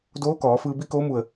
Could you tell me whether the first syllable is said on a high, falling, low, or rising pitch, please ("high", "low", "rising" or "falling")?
rising